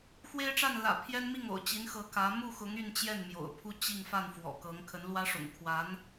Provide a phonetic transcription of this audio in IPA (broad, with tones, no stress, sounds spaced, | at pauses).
x w e˥ ɪ̯ ʈ͡ʂ a˥˩ n l ä̰˨˩ pʰ j ɛ˥ n m i˥˩ ŋ o̰˨˩ ʊ̯ t͡ɕ i˧˥ n x ɤ˧˥ k ä˧˥ m u˥˩ x ʊ˧˥ ŋ y˥˧ n t͡ɕ j ɛ˥˩ n m j o̰˨˩ ʊ̯ pʰ u˥ t͡ɕ i˥˧ ŋ f a˥˩ n f w ɔ̰˨˩ k ɤ˧˥ ŋ kʰ ə˧˥ n l w ä˥ ʂ ʊ̰˨˩ ŋ kʰ w a˧˥ n